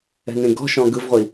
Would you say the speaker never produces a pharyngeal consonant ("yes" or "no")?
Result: yes